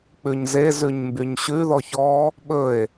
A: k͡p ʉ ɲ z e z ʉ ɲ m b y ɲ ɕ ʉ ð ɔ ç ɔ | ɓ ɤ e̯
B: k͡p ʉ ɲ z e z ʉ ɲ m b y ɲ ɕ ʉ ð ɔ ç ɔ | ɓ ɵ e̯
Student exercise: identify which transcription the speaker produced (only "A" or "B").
B